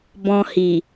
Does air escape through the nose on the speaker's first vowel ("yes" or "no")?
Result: yes